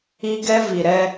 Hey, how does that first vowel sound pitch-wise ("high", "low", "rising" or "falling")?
high